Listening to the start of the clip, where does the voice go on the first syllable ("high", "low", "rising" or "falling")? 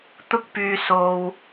high